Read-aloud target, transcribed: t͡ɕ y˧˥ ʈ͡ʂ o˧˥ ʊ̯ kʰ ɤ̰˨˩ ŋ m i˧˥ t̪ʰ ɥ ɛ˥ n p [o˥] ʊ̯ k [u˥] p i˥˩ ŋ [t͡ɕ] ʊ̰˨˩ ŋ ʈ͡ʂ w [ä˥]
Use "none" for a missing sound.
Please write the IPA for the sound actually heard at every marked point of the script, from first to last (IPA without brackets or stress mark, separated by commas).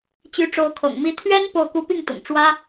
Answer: o˥˩, u˥, t̪, ä˥